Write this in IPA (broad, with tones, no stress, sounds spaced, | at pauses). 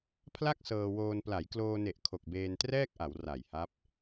pʰ l a˥˩ k̚ s ɤː˧ w oː˧ n p l a˩˦ j k l oː˧ n e˨˩ ʔ kʰ o˨˩ k̚ b eː˧ n t r ɛː˥˩ k̚ ʔ a˩˦ w r a˨˩ j h a˦˥ p̚